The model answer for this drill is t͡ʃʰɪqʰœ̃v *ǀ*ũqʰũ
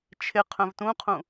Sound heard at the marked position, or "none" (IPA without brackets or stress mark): t